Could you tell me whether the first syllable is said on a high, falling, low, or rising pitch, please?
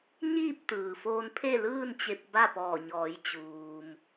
falling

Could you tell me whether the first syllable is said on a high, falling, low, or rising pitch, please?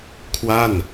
falling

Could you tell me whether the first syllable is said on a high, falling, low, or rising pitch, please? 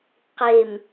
low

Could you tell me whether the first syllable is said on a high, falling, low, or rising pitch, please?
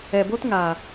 low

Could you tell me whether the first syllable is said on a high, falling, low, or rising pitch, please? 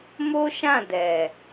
high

